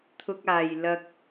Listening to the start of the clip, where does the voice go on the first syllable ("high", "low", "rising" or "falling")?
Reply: high